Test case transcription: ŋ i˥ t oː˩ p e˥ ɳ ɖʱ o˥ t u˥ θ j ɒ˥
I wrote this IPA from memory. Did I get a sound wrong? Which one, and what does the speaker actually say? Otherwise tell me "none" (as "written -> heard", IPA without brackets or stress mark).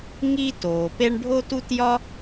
θ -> t